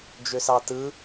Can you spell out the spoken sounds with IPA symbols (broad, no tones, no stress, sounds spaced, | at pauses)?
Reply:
d͡ʒ ø s ɑ t ɯ